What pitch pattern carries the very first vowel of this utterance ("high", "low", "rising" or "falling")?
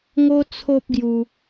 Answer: high